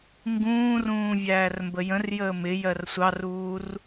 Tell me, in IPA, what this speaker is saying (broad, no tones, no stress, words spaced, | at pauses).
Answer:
ŋɡũːrũː vʲæːrmbəjə̃rjəː mɪjɜr sʷɑruːr